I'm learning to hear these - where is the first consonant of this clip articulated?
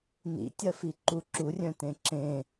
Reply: tongue tip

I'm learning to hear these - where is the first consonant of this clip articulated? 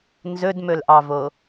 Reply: tongue tip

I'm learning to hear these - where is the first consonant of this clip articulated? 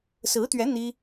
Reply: tongue tip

